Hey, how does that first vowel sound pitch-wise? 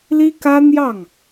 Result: high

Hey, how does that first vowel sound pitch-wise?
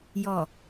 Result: low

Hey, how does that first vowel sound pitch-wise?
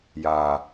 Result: low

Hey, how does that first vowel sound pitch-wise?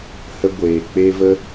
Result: high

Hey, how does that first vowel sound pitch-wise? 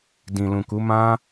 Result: low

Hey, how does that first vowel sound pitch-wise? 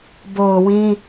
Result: low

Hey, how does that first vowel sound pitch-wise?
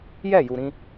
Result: falling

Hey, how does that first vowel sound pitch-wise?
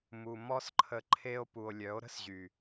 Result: low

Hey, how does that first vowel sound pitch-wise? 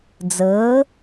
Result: rising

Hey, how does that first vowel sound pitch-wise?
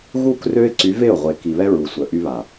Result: falling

